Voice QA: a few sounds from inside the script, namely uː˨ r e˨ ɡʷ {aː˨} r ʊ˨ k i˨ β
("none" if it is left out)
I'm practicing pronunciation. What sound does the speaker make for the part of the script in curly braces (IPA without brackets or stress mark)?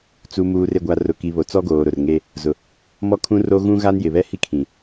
a˨